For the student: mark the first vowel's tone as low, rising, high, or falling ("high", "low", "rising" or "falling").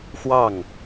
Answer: falling